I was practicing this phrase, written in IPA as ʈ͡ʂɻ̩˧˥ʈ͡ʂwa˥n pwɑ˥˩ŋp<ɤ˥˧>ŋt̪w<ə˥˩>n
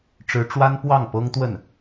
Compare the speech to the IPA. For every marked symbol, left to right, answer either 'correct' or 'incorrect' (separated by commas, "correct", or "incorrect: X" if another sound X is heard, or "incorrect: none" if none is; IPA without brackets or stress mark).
incorrect: ɤ˥, correct